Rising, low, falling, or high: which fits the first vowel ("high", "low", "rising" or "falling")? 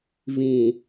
low